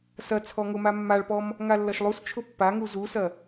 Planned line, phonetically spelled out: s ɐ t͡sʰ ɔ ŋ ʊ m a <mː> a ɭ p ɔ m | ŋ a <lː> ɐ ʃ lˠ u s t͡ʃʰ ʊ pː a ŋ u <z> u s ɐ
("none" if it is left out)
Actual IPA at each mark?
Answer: mː, lː, z

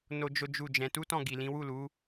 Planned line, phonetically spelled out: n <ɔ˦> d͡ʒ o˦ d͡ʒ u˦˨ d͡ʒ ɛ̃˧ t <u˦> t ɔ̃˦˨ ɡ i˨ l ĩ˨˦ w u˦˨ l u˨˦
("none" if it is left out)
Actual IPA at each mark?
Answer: o˦, u˦

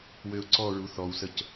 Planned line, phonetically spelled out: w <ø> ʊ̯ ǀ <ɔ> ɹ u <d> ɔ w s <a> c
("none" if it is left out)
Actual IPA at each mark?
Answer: ø, ɔ, θ, ə

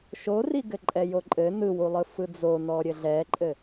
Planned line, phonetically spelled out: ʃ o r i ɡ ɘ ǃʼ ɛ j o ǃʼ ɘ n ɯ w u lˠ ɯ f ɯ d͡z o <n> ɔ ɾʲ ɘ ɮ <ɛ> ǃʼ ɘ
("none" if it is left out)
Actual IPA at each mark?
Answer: n, ɛ

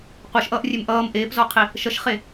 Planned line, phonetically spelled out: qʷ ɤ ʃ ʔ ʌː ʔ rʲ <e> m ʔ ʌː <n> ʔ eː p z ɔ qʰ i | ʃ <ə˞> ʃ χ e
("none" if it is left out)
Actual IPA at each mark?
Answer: e, m, ʌ

